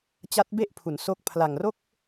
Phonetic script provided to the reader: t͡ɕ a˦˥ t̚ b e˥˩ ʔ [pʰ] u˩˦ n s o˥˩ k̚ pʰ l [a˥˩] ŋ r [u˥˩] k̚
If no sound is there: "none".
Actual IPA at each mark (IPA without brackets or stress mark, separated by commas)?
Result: pʰ, a˨˩, o˥˩